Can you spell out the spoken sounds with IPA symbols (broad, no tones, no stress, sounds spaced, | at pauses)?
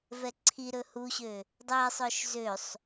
v ɛ ǀʰ i ɾ ɵ h u ɕ ø | dˤ ɛ sˤ œ ʃ z ø sˤ